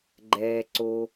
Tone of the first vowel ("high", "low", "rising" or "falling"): low